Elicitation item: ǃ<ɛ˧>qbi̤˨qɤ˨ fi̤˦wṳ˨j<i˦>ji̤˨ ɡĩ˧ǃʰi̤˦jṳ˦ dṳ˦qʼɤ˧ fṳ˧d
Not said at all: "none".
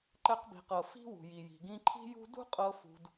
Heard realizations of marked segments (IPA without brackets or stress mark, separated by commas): ɛ˧, i˨